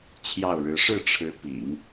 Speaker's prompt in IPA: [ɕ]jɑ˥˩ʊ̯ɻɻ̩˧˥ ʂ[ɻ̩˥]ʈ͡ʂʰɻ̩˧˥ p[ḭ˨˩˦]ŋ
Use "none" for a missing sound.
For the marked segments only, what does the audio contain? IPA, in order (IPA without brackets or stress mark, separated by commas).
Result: t͡ɕʰ, ɻ̩˥˩, ḭ˨˩˦